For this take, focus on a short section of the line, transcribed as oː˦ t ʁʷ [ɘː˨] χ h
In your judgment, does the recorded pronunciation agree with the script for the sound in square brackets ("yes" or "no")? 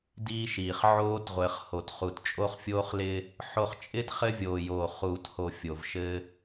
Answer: yes